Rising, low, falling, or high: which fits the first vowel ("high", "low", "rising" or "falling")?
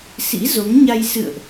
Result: rising